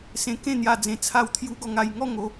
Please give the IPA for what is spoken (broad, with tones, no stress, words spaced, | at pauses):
sẽ˧kẽ˥˧n̪ja˧d͡zẽ˧ t͡sʰa˦wt̪ʰju˦ ɡɔ˧ŋa˧j ŋɔ˥˧ŋo˧